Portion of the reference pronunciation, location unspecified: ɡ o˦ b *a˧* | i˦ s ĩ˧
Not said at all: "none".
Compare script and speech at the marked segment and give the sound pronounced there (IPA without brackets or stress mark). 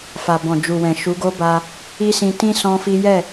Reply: a˧